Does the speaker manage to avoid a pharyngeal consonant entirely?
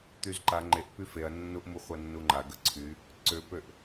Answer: yes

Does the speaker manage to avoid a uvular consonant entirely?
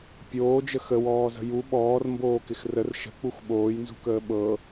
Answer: yes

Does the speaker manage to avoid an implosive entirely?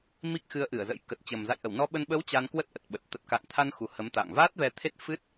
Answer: no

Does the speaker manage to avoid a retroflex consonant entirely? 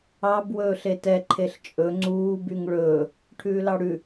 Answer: no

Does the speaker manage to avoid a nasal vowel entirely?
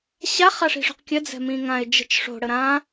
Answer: no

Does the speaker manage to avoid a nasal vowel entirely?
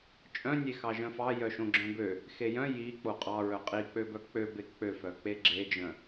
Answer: no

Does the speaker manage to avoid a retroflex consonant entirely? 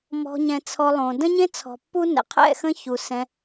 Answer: yes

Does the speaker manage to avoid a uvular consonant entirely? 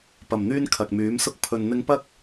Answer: yes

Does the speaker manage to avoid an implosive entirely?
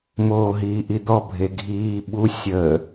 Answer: no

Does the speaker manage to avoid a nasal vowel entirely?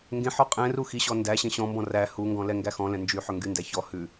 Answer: no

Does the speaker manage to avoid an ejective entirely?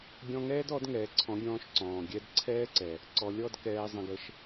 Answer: yes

